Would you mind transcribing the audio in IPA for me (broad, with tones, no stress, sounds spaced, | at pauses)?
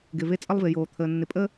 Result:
ɡ ɪ˨ v e˦˨ t͡sʼ ə˦ lˠ v ɪ˨ j oː˨ t̪ʰ əː˨ nː ɪ˨ pʼ ə˦